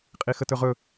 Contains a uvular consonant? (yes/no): yes